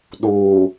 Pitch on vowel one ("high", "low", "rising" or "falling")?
low